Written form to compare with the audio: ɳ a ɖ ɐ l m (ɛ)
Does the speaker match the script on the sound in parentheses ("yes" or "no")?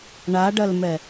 yes